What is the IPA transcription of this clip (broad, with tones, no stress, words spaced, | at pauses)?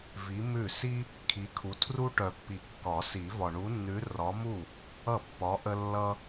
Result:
vi˨˥ mʉ˥˩ si˦ | kʰi˨˥kʰu˨˥ tʰru˦ʈœ˨pːi˨kːɒ˨˩˦ si˨˩˦vɒ˨ɳu˨˥nːʉ˨˥ rɒ˨˥mu˥˩ | ʌ˥˩pːɒ˨˥ʔə˦ lːʌ˦